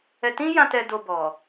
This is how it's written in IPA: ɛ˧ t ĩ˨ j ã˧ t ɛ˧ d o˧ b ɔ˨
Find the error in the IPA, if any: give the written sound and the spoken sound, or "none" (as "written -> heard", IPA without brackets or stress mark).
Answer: ĩ˨ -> ĩ˦